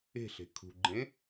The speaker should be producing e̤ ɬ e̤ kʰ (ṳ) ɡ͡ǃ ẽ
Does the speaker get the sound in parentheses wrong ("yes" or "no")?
no